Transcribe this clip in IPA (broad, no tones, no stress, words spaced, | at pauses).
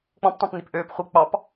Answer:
k͡pɔ̃ptˤɑ̃pnip ʔøːp χʷi k͡pɑp